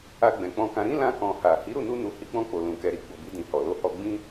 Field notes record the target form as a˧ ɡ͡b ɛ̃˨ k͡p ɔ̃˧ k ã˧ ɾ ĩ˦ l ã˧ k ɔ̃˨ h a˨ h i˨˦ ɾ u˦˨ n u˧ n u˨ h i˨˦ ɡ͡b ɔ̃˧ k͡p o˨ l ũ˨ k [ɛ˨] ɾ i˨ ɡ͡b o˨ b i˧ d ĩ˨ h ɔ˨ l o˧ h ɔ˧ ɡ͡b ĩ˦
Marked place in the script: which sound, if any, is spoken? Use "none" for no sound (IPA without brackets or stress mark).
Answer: ɛ˨